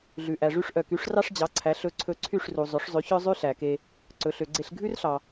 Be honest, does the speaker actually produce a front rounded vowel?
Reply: yes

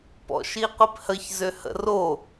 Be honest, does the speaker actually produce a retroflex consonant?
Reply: no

